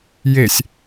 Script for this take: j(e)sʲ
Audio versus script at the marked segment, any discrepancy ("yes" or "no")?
no